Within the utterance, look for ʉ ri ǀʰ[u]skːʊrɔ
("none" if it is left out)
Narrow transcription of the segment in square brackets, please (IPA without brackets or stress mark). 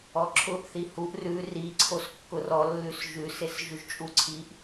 o